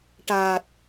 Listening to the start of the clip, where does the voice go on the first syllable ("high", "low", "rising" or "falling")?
low